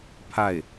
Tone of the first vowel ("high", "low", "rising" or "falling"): falling